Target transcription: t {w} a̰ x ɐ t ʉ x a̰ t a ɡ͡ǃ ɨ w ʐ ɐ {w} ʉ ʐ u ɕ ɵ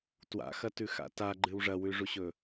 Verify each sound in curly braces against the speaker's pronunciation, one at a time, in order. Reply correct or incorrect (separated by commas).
correct, correct